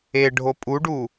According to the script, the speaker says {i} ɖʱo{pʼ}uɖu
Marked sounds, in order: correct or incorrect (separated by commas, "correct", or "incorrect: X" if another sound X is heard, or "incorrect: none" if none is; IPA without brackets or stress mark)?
incorrect: e, correct